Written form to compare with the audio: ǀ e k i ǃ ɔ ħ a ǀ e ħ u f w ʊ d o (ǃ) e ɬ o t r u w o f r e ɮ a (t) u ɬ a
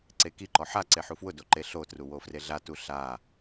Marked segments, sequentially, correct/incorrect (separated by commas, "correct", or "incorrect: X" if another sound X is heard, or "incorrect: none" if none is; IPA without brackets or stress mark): correct, correct